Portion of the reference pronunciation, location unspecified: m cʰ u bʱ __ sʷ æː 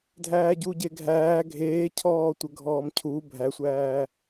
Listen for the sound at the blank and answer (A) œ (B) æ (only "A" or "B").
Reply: B